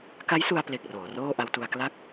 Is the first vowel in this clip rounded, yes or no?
no